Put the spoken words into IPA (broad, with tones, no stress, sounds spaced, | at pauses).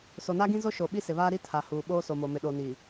s o˨ n a˦ ɡ ĩ˦ z o˦ ʃ o˨ ɓ i˦ s ɪ˨ β aː˦ ɾ i˦ tʰ a˨ h uː˨ ɓ oː˦ s o˨ m o˨ m ɪ˨ ɗ o˨ n i˨